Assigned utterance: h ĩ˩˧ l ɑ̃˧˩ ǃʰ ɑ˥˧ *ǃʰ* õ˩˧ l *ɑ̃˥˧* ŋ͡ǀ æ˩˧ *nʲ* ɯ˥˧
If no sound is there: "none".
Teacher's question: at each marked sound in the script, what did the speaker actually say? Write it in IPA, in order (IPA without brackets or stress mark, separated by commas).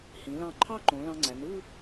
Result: ǃ, ɑ̃˧, n